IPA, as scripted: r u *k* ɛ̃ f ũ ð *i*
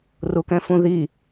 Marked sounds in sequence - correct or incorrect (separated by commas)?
correct, correct